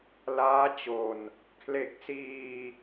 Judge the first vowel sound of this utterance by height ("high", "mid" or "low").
low